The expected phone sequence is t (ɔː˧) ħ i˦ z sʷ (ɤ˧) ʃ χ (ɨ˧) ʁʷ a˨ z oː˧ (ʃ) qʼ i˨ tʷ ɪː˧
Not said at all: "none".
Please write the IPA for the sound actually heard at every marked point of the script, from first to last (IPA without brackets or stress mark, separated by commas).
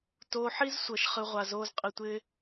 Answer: oː˧, ɤ˧, ɨ˧, z